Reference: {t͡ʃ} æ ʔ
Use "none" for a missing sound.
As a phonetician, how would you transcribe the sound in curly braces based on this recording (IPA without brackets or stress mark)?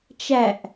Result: t͡ʃ